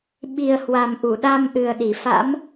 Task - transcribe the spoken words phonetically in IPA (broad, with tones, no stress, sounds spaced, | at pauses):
ɓ i˨˩ ə̯ h w a˨˩ m ʔ u˧˩ ɗ a˧ m ʔ ɨ˨˩ ə̯ ɗ i˧˩ f a̰˧˥ m